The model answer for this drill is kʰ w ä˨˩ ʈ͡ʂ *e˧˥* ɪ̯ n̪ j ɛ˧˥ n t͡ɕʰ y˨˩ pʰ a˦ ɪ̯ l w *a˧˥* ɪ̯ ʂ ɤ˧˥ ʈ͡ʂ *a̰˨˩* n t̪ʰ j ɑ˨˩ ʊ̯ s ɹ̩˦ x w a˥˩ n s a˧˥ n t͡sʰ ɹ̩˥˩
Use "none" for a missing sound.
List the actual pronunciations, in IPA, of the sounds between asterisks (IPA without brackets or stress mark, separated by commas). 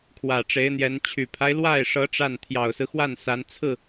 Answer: e˧˥, a˥˩, a˥˩